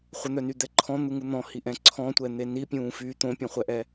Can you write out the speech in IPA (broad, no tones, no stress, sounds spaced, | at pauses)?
χʷ ə n̪ œ n y d̪ ɛ ǃʰ ɔ̃ n̪ u ŋ u n̪ ɔ̃ h i ʔ ɛ̃ ǀʰ ɔ̃ tʷ ɛ n̪ e n i pʲ ũː f y t̪ õ pʲ ɔ̃ χʷ ɛ ʔ ɛ